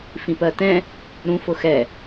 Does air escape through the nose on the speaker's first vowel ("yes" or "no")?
yes